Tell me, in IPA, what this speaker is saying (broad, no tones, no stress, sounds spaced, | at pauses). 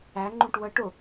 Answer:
æ ŋ͡ǃ ũ ʈ w ə ʈ ʊ